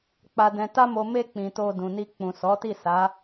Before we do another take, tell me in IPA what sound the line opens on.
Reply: k͡p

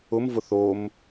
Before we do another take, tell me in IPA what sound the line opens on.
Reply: ʊ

